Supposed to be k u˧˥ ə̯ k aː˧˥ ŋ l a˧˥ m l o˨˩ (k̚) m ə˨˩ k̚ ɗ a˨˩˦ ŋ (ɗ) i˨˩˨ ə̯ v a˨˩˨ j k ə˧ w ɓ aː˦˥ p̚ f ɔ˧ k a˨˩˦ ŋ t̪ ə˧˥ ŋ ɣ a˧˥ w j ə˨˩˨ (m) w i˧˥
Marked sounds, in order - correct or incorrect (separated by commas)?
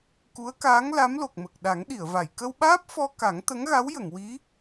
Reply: correct, correct, incorrect